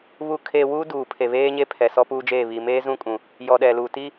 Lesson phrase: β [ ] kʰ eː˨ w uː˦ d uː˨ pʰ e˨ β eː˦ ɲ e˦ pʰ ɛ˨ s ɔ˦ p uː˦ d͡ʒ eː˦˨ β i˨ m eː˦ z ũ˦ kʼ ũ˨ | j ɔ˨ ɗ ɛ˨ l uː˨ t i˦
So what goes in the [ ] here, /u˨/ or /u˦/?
u˨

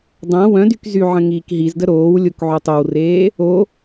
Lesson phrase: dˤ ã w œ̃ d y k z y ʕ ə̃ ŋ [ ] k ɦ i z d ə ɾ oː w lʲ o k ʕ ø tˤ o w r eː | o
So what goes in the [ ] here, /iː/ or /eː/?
iː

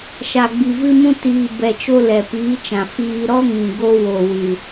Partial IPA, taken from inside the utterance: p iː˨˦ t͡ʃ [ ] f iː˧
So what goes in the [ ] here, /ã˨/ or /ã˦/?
ã˨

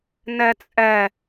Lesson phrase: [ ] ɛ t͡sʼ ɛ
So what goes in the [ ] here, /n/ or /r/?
n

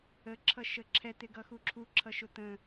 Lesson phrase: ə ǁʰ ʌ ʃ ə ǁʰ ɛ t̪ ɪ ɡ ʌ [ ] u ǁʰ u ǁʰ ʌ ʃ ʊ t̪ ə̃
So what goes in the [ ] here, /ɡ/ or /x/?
x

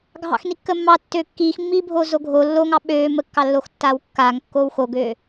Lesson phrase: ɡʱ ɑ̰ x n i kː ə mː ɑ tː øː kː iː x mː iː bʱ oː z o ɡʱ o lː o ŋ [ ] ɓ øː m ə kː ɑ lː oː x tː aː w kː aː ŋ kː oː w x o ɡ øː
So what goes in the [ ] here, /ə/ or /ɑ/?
ɑ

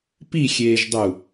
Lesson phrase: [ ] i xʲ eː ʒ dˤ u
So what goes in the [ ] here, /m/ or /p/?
p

